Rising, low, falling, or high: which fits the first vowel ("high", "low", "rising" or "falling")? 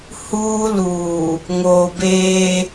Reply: high